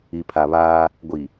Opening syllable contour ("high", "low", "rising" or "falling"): low